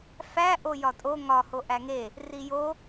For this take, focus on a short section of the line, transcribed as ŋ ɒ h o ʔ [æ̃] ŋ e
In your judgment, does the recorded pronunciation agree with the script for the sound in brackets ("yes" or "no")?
no